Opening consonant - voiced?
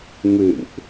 yes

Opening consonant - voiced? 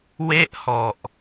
yes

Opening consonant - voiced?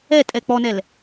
no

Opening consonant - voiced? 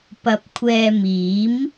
no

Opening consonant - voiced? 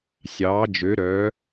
no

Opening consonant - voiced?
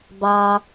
yes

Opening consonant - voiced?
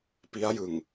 no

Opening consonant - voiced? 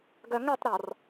yes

